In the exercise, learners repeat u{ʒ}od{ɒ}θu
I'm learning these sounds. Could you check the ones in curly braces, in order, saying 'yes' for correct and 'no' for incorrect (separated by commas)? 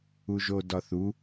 yes, yes